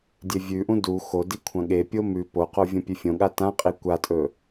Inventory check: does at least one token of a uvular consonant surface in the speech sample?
yes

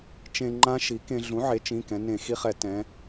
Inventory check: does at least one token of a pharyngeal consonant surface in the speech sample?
yes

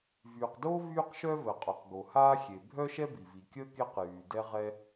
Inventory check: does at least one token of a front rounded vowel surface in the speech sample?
yes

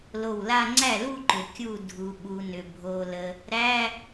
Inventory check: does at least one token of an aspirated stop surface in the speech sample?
no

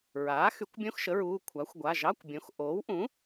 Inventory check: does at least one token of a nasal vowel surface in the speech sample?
yes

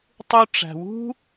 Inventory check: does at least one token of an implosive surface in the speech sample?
no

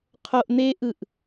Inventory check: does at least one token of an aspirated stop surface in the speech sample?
yes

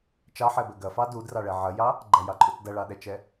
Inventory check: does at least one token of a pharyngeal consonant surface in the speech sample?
yes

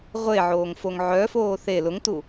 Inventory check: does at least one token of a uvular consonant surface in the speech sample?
yes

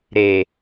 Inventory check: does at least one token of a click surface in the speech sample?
no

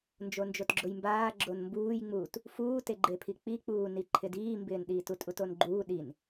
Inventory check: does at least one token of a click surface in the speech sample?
yes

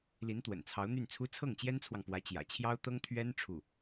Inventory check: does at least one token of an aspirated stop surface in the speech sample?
yes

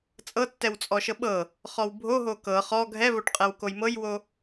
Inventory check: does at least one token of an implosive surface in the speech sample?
yes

